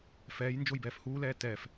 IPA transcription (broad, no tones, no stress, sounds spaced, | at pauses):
f ɛː j n d͡ʒ o j b ɛː f h uː l ɛː t ɛ f